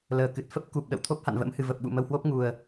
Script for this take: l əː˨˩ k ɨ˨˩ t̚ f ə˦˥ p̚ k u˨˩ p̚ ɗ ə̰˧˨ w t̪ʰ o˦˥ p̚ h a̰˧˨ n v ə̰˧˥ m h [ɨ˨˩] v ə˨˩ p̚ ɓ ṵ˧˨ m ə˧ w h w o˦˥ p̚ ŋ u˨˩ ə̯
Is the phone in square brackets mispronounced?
no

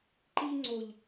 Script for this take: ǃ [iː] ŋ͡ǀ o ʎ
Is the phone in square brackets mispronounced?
no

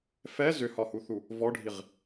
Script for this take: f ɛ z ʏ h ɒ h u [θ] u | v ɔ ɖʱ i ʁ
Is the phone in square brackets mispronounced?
no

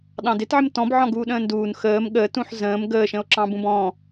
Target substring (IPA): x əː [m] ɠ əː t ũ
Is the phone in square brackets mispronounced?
no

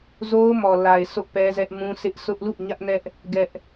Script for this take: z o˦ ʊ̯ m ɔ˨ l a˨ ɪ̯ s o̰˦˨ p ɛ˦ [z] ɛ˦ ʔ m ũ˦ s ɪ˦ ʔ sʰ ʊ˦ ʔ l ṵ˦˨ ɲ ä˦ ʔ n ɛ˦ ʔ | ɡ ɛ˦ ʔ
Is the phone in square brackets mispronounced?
no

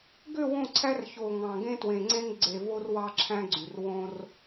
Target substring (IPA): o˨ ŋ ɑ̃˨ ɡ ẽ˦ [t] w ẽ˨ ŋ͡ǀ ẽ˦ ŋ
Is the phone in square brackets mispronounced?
no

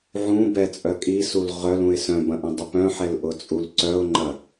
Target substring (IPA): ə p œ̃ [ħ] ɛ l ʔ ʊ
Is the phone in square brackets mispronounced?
no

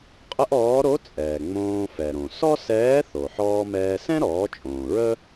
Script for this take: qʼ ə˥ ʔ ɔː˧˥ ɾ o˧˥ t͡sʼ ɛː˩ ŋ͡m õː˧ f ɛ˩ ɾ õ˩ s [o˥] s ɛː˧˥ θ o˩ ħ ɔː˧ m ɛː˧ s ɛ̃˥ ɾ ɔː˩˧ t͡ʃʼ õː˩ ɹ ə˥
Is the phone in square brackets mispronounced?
yes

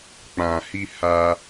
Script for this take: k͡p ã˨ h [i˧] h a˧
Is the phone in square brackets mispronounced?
no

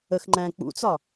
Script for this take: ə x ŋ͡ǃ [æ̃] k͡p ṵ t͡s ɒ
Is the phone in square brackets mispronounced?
no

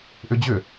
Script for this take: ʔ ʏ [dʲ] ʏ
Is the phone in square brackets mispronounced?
yes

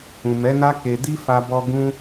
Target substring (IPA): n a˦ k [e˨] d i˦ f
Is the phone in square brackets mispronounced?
yes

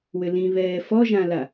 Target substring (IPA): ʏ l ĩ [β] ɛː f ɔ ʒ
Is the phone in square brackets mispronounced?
no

